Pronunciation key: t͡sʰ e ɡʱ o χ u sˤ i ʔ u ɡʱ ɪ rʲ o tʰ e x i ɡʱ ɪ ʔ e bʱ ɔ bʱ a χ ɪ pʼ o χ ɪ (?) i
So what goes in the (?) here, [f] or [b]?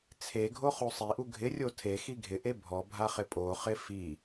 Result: f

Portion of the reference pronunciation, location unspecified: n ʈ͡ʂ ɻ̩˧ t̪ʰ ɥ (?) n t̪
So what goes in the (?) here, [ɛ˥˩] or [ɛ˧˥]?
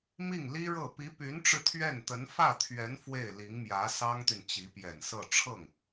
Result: ɛ˥˩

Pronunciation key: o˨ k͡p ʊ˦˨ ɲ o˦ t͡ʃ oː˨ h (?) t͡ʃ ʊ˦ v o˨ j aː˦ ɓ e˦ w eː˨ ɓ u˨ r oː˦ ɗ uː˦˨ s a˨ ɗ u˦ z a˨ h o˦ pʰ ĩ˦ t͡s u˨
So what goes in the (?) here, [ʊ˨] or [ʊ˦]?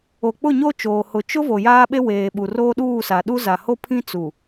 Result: ʊ˨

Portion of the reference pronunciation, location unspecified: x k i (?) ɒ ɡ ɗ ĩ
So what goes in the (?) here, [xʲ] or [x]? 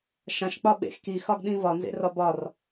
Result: x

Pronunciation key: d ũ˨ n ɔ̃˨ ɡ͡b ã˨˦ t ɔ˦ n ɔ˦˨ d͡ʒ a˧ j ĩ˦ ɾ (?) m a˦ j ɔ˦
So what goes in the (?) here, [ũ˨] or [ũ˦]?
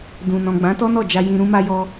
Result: ũ˦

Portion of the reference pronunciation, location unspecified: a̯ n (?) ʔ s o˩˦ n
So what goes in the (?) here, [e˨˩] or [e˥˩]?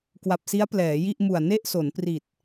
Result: e˥˩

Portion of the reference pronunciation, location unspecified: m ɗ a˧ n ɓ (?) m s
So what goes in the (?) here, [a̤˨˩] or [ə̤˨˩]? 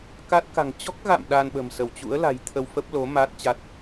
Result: ə̤˨˩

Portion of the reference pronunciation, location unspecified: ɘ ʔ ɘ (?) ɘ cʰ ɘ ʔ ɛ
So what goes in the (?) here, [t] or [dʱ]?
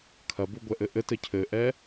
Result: t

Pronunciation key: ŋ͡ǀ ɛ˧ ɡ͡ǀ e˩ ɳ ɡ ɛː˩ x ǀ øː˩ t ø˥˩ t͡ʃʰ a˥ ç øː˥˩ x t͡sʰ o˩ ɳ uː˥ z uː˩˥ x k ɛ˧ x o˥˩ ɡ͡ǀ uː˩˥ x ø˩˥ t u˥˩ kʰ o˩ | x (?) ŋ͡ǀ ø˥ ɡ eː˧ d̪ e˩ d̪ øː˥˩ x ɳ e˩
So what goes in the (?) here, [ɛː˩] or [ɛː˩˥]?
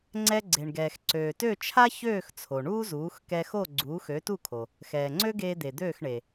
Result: ɛː˩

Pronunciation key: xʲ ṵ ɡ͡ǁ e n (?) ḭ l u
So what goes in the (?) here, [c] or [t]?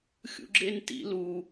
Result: t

